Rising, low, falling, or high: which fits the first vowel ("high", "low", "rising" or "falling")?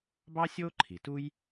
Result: high